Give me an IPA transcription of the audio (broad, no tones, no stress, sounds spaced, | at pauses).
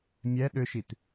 mʲ ɛ ɗ ʏ ʃ i t